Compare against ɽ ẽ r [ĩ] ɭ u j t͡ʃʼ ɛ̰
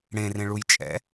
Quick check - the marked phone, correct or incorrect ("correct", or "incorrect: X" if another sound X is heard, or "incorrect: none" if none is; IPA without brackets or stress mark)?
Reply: incorrect: ẽ